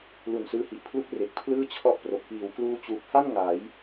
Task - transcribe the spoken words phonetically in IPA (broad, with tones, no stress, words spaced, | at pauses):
lu˨˩nsɯː˧hi˨˩ʔpʰlu˦˥k̚ re˨˩k̚ pʰlɯː˥˩t͡ɕʰɔ˦˥ʔpro˨˩k̚ piː˨˩wkluː˧ t͡ɕuː˨˩p̚ha˥˩n ŋa˩˦j